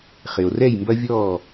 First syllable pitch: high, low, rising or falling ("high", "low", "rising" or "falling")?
low